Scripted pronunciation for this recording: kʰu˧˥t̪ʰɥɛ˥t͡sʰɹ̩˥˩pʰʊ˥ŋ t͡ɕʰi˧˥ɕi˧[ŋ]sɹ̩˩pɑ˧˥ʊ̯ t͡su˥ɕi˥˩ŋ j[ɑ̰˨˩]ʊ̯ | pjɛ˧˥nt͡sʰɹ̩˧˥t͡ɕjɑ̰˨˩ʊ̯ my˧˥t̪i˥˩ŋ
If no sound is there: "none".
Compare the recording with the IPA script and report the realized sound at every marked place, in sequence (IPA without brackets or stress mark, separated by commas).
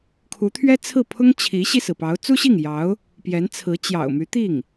none, ɑ˧˥